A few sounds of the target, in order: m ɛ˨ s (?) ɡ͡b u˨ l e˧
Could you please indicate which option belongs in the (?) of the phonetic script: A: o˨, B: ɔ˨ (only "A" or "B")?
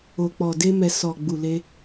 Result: B